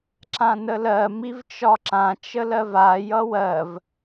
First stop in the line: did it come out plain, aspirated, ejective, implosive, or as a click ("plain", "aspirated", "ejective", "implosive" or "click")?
click